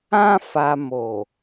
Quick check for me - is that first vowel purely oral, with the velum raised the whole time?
no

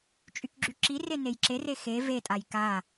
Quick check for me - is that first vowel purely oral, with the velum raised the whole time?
yes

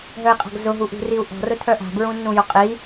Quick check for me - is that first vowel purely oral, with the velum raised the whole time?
yes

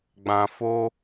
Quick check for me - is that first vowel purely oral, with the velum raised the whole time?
no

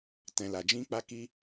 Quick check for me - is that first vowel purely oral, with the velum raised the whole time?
no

